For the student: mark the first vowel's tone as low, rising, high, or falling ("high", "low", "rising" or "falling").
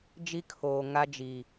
high